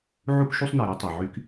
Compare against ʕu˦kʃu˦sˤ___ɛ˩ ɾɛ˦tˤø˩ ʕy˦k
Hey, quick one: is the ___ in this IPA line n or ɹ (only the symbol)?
n